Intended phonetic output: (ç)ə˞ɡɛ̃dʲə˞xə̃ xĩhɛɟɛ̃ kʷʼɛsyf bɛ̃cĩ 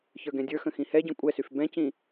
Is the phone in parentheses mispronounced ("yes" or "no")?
no